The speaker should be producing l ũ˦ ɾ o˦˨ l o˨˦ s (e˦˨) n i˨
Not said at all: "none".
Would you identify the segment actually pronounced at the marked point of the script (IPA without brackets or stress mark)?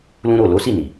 i˦˨